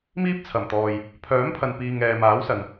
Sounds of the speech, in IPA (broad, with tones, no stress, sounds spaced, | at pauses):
m iː˥ p̚ t͡sʰ ɐ˨˩ m t̪ ɔː˨ j | pʰ œː˨˥ m pʰ ɐ˨ n p iː˨ ŋ ɛː˨ m aː˨˥ w s ɐ˨ n